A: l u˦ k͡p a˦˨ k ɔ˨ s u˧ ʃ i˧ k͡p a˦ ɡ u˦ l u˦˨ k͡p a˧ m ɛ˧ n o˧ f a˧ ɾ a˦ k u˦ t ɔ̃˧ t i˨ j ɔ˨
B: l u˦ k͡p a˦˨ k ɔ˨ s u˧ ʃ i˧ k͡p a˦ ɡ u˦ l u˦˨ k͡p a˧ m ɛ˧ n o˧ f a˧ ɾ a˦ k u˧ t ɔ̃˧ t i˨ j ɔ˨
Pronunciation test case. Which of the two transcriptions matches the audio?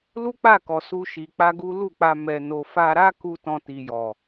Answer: B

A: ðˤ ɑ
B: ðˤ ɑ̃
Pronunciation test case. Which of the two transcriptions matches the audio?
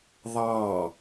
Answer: A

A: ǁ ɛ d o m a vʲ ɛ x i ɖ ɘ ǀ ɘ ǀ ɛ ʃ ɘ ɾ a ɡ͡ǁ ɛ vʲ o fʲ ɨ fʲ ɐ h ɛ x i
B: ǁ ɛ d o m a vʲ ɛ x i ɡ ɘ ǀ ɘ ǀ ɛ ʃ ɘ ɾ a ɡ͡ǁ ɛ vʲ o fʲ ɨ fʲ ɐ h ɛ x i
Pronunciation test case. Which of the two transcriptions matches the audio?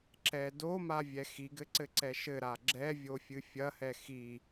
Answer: B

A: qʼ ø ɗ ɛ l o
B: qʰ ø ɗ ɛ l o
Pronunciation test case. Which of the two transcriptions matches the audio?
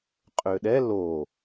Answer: A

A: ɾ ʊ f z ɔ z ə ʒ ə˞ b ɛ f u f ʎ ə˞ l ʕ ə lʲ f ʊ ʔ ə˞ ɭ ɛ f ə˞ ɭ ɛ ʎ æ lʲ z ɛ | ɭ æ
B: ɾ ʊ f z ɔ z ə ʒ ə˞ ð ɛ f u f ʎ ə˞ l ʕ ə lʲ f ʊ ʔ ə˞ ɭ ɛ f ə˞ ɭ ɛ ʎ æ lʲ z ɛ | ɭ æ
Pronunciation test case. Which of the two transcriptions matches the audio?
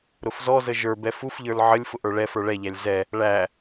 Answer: A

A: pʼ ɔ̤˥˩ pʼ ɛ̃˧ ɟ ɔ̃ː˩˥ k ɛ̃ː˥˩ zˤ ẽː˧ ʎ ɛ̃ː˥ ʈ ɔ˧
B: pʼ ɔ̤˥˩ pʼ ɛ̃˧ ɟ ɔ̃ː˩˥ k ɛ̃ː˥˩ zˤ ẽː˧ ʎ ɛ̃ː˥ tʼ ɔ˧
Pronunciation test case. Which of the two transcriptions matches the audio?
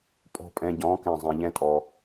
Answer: B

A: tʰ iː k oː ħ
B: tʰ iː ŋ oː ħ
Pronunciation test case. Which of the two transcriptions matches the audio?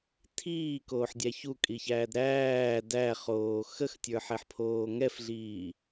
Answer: A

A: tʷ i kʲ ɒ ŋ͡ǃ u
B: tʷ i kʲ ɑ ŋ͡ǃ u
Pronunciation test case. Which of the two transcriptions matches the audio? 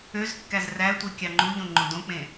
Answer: B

